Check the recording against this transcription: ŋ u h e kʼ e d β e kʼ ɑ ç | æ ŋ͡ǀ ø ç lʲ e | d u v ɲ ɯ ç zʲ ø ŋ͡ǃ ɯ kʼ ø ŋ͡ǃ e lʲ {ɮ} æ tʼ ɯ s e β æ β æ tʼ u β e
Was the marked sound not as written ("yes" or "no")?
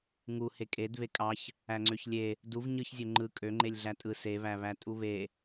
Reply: no